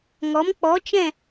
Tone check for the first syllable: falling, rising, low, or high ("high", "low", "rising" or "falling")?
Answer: rising